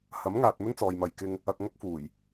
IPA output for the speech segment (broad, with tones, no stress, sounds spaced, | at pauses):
h ɐ˨˥ m ŋ aː˨ t̚ m ɵ˥ n t͡s ɔː˨ j m ɐ˨ j k ɪ˧ ŋ | ɐ˧ k̚ ŋ ɐ˥ k̚ f uː˨˩ j